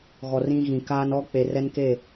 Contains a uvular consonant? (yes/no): no